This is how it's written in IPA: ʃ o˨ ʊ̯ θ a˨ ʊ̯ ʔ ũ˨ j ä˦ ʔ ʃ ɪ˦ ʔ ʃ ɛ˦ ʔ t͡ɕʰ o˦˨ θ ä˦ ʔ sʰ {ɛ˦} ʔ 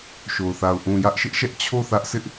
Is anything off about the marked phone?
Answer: yes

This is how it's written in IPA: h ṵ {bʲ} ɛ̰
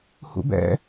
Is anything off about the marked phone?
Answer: yes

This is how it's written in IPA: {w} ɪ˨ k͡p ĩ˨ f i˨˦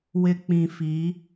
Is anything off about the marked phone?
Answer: no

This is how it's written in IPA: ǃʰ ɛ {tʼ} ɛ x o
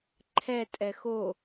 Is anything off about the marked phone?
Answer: no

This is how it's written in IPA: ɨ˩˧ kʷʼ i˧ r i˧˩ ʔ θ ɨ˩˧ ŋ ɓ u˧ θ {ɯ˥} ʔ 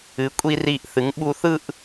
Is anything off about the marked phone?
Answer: yes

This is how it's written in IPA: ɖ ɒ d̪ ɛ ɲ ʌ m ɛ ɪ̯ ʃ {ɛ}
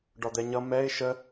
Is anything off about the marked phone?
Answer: yes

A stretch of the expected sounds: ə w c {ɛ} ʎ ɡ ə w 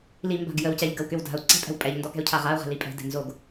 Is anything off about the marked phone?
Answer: no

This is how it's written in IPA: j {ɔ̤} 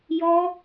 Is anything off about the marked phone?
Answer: yes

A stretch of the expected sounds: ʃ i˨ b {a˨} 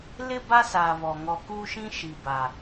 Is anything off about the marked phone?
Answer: no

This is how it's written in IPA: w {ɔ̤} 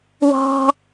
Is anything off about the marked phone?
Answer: no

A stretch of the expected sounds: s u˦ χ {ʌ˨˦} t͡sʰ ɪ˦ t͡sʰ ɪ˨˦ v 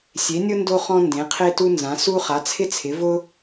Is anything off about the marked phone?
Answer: yes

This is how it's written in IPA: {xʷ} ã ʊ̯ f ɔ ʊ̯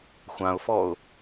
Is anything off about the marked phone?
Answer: no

